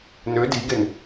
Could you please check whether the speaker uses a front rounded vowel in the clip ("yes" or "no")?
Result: yes